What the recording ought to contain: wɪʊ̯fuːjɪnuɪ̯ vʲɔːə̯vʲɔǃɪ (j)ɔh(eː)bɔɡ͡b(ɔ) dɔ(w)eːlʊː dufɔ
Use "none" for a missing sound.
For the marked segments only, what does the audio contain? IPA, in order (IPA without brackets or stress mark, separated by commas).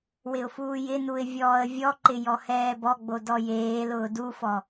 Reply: j, ɛː, o, j